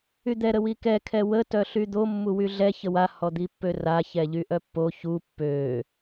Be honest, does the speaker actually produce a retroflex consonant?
no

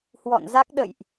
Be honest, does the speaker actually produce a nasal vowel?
no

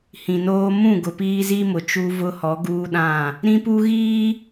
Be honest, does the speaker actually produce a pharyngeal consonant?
no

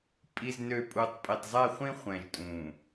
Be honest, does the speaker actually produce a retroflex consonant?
no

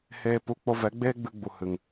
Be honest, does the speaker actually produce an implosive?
no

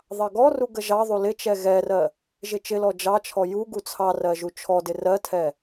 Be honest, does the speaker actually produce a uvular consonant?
no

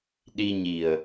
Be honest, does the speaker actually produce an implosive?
yes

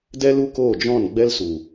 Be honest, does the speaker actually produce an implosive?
no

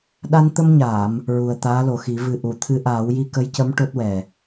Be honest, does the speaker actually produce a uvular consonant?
no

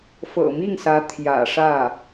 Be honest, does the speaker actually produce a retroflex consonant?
yes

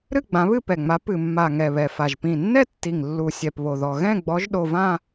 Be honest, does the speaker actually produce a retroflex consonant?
no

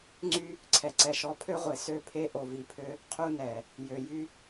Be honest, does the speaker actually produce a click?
yes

